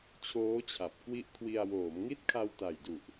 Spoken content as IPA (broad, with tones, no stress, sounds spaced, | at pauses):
t͡ɕʰ oː˦˥ t͡ɕʰ a˨˩ p̚ k w i˦˥ ʔ kʰ w i˧ a̯ w oː˩˦ m ŋ i˦˥ t̚ kʰ a˧ w t a˨˩ j d u˨˩ ʔ